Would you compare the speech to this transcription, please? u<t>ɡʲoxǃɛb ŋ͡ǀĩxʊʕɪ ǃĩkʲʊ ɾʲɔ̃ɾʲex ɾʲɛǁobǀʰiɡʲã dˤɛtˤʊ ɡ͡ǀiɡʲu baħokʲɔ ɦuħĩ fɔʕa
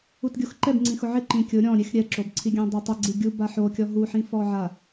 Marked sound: correct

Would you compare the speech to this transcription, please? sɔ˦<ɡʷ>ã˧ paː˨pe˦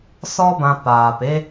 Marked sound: incorrect: b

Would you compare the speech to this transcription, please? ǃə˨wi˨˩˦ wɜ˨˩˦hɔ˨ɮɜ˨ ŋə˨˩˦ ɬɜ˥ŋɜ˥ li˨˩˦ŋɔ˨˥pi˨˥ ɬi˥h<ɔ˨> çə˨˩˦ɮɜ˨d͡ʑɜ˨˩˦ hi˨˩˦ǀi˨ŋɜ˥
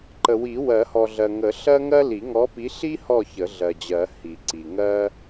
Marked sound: incorrect: ɔ˦˨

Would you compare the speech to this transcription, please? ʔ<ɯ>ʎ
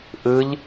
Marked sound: correct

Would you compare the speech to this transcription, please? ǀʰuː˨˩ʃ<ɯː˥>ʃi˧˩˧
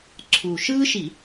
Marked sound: correct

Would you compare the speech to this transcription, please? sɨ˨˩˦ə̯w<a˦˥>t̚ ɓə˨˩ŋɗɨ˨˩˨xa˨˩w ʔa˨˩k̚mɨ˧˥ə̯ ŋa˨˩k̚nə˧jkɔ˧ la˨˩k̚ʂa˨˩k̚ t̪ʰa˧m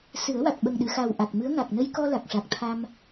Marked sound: incorrect: a˨˩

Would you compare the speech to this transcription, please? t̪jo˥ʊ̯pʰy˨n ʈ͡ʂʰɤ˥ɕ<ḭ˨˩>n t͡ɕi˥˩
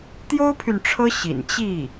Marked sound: correct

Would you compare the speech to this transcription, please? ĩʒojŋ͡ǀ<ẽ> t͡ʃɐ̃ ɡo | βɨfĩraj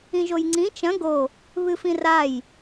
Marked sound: incorrect: ĩ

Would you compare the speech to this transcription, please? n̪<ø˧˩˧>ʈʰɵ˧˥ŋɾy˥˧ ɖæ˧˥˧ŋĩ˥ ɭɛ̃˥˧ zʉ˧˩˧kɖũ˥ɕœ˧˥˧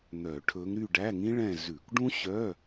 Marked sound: incorrect: œ˧˩˧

